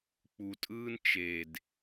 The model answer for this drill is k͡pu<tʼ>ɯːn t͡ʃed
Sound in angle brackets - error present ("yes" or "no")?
no